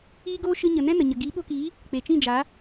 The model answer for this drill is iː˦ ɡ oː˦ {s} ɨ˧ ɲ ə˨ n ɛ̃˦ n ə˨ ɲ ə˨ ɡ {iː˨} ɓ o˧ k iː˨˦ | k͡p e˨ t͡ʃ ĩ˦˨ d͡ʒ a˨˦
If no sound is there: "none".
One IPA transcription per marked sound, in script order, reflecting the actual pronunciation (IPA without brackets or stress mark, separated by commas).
ʃ, iː˨˦